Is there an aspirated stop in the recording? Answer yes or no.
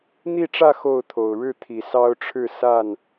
yes